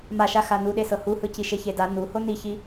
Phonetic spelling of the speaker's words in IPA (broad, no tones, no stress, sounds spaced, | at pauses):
m a ʃ a x a n u ɗ e s ɤ h u h ɯ c i ʃ e ç e d a n u h o n i ç i